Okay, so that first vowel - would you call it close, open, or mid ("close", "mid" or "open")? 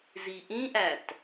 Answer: close